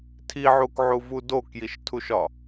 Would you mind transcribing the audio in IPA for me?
tʰ i ʕ u k ʕ u v u d o k j i ʃ tʰ u ʃ ɒ

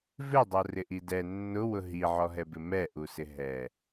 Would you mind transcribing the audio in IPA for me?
v ɪ dˤ o r ɪ ʔ i d ɛ nː ʊ w ʊ ɦ i ʕ ɔ ɦ ɛ b ɪ m ɛ ʔ u s ɪ ɦ ɛ

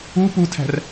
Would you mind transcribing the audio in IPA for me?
u p u tʰ æ̤ r

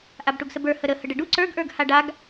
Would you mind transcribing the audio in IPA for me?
ʔ a b ʈ u ɡ s ə b ə˞ h ə ɾ ə h ə ɖ ə ɖ u ǀ ə˞ ɡ ʔ ə˞ ɡ h a ɖ a ɡ

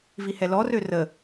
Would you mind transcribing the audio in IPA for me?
v i h ɛ l ɔ r ø r ə

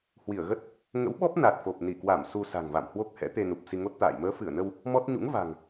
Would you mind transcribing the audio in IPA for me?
h w i˧˩ ə̯ ɣ ə˦˥ t̚ | ŋ ə̰˧˥ w ɓ ɔ˦˥ p̚ n a˨˩ t̚ f o˨˩ p̚ n i˧˩ k w a˧˩ m s u˧ s a̤˨˩ ŋ v a̰˧˨ m h w o˦˥ k̚ h ɛ̰˧˥ t̪ e˧ n u˨˩ p̚ s i˧ ŋ o˦˥ t̚ t̪ a̰ː˧˨ j m əː˨˦ f ɨ˧˩ ə̯ n ə˧ w | m ɔ˦˥ t̚ ɲ ṵ˧˥ ŋ v a̤˨˩ ŋ

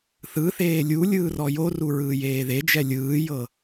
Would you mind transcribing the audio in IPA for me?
θ ɯ θ eː lʲ u lʲ ɯː r ɔ j o r u ɹ ɯː j eː ð e d͡ʒ ɛ lʲ ɯː j ɤ

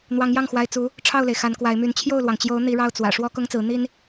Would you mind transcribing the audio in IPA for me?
n̪ w ɑ˧˥ ŋ j ɑ˥˩ ŋ x w a˧˥ ɪ̯ t͡s u˧˥ | ʈ͡ʂʰ ɑ˥˩ ʊ̯ l e˩ ɪ̯ x a˧˥ n k w a˧˥ ɪ̯ m y˧˥ n t͡ɕʰ j o˥˩ ʊ̯ l w ɑ˩ ŋ t͡ɕ j o˧˥ ʊ̯ n̪ i˧˥ ɻ ɑ˥˩ ʊ̯ t͡s w ä̰˨˩ ʂ w ɔ˥ k ʊ˥ ŋ t͡s ɹ̩˧˥ n̪ i˥ n

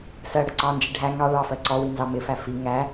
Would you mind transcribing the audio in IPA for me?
s ɜ ɽ ə ǀ ɑ n d͡ʒ i ɖʱ æ ŋ ɑ ɭ ɑ f ɜ ǀ ɔ w i n z ɑ m ɪ f æ f i ŋ æ

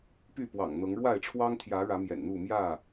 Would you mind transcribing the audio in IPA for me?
p y˥˨ p w ɑ̰˨˩ ŋ n̪ ɤ˨˦ ŋ ɻ w a˥˨ ɪ̯ ʈ͡ʂʰ w ɑ˦ ŋ t̪ʰ j ä˨˦ ɻ ä˨˦ m j ɛ̰˨˩ n n̪ u˥˨ m j ä˥˨

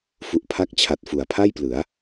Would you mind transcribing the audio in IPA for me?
f u˨˩ ʔ pʰ a˦˥ k̚ t͡ɕʰ a˨˩ t̚ f u˩˦ a̯ pʰ a˥˩ j p l ɯ˩˦ a̯

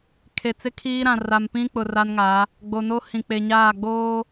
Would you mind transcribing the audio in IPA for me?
kʰ e˨ t͡s ɪ˦ kʰ iː˦ ɾ ã˨ r a˨ m p ĩ˦ k͡p ʊ˨ r a˦ n ŋ a˨˦ | ɡ͡b o˨ n o˦ h ĩ˨ k͡p e˨ ɲ aː˦˨ ɡ͡b oː˦

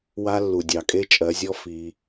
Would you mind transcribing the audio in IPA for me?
w a˦ lː u˨ dʲ ɑ˨ kʼ e˦ t͡ʃʼ ɜ˨˦ zʲ ɔ˦ f i˧

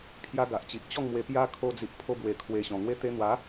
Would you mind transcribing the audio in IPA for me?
pʰ j a˧ ɡ a˨ ʔ t͡ɕ i˨ ʔ t͡ɕ ɔ˥˧ ŋ m w e˧ p j a˦ kʰ o˧ d͡z i˨ ʔ pʰ o˧ b w e˧ kʰ w e˧ ɕ ɔ̃˨˩ ŋ w e˧ t̪ e˧ n̪ w a˨˦

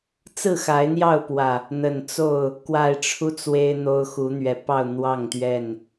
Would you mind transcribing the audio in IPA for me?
t͡s ɹ̩˥˨ x a˨˦ ɪ̯ n̪ j ɑ˥˨ ʊ̯ p w ä˨˩ | n̪ ə˨˩ n t͡s o˥˨ ʊ̯ | k w a˨˩ ɪ̯ ʈ͡ʂʰ u˦ t͡s w e˦ ɪ̯ n̪ o˦ ʊ̯ x u˨˦ n̪ ɥ ɛ˨˩ p ɑ˥˨ ʊ̯ n̪ w ɑ˥˨ ŋ t̪ ɥ ɛ˥˨ n

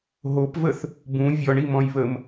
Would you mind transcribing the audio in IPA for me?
ɦ o p v ə θ | b ũ vʲ ɔ ɳ i m ɔ̃ j β ə m

